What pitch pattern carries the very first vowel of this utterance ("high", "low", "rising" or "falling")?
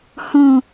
low